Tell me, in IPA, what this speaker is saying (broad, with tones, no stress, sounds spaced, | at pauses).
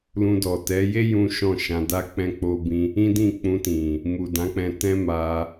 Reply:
l ũ˧ d ɔ˨ t ɛ˨˦ j e˦ j ũ˦ ʃ ɔ̃˦˨ ʃ ã˧ d a˦ k͡p ɛ̃˧ k͡p o˧ b ĩ˧ | ĩ˦ d ĩ˦˨ k͡p ũ˧ t ĩ˨ | m u˨ d ã˨˦ k͡p ɛ̃˧ t ɛ̃˦ m a˧